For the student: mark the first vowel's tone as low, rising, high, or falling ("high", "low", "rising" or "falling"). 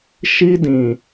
high